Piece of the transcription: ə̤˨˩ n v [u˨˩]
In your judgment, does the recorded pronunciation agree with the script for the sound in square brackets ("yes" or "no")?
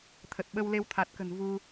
no